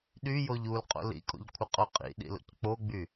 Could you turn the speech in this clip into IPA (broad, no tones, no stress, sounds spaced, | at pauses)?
ɗ y j o ʎ u l qʼ o̰ l ḭ kʼ o̰ ʎ kʷʰ ə qʼ o qʼ ḭ ɗ ḭ l o̰ c k͡p o ɡ͡b y